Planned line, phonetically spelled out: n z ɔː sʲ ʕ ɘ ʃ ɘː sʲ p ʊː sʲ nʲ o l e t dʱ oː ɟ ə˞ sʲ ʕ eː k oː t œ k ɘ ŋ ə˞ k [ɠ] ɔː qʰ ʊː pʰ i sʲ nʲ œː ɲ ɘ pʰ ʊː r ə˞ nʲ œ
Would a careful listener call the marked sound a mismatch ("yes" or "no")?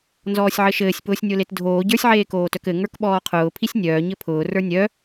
yes